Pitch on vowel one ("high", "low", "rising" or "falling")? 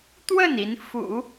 falling